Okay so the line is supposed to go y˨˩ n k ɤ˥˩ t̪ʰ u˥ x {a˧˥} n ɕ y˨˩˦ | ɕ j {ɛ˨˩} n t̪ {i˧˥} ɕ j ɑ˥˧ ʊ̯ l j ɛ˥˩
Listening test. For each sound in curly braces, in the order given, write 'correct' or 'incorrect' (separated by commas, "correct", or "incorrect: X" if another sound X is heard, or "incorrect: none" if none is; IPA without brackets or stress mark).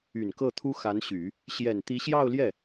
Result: correct, correct, correct